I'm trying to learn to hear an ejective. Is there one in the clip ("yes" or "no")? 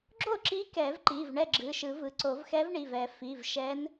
no